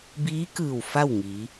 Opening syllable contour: rising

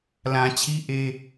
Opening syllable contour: low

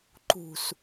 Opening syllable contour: low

